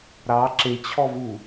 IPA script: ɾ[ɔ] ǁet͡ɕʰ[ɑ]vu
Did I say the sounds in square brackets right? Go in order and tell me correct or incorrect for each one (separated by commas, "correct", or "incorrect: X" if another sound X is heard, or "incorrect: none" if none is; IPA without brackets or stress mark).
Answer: incorrect: ɑ, incorrect: ɔ